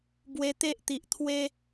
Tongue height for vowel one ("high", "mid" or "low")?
mid